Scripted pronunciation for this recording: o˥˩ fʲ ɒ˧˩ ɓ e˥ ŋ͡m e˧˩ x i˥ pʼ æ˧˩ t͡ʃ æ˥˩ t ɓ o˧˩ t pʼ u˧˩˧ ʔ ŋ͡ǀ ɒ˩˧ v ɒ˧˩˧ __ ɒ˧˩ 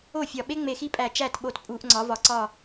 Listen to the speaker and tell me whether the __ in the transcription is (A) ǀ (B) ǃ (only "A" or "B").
A